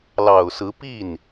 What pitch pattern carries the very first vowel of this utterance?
low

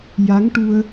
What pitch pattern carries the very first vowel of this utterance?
rising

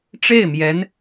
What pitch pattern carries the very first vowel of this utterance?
falling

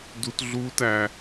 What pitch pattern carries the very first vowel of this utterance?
high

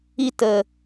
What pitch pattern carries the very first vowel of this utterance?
high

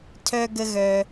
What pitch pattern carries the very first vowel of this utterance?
high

